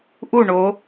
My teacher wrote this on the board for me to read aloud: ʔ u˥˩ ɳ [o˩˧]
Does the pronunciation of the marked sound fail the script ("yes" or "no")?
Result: no